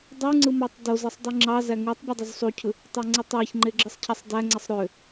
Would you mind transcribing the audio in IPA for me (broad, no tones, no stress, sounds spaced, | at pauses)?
dˤ u ŋ͡ǀ ɯ m ɑ tˤ d o z ɯ sˤ dˤ ɯ ŋ͡ǁ ɑ z æ ŋ u tˤ bʲ ɯ dˤ u z sˤ u cʰ ɯ | tˤ ɑ ŋ͡ǀ ɯ tˤ æ ç ŋ͡ǃ e ɡ͡ǁ ɯ sˤ cʰ æ sˤ d æ ŋ͡ǀ e sˤ ɾ ø